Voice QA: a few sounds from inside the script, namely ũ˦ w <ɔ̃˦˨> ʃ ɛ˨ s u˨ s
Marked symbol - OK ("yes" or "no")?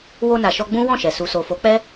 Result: yes